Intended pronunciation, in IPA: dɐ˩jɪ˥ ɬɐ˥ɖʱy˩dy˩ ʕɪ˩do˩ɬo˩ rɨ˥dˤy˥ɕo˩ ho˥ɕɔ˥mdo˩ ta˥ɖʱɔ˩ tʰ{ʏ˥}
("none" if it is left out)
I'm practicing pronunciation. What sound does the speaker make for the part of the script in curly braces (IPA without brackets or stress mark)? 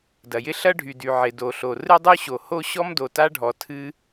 ɨ˥